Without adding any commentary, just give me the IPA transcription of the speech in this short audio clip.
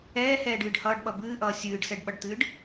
ɛː h ɛː ɖ ɨː ɖ h ʌː ɖ ɓ ʌ b ɨː ʔ ʌː sʲ ɨː ɖ s ɛ ɖ ɓ ʌ ɖ t̪ ɨː ɖ

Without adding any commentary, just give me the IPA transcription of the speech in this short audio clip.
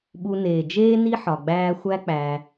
ɓ u˨ n eː˩ d͡ʒ eː˦ n i˥ ħ ɒ˨ ɡ͡b æː˦ xʷ æ˥ k͡p æ˨

